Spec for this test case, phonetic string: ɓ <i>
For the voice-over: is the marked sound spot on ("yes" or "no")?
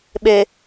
no